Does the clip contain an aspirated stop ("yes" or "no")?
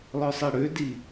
no